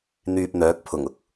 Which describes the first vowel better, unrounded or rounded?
rounded